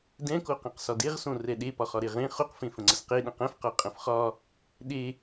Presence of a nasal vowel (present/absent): present